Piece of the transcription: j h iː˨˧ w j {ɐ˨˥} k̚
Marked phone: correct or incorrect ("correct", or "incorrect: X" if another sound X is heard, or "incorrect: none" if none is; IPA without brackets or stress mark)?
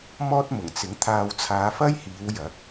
correct